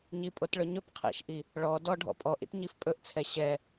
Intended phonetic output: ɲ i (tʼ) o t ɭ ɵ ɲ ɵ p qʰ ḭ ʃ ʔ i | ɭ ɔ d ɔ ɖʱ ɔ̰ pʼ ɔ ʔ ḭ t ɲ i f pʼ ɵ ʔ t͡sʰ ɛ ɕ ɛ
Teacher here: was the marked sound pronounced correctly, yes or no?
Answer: no